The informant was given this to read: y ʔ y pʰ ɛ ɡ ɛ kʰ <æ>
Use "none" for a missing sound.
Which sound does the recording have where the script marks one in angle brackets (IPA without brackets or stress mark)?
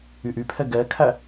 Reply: æ